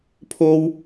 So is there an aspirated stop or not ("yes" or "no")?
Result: yes